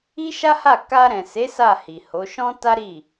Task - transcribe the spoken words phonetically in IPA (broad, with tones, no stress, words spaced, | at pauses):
i˦ʃa˦ha˦˨ ka˧ɾɛ̃˨se˨˦ sa˦˨hi˨ho˨˦ ʃɔ̃˦ta˦ɾi˦˨